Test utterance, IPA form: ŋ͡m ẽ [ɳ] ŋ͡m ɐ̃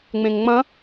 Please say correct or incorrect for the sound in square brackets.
incorrect: ŋ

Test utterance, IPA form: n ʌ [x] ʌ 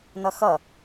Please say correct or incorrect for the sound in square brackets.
correct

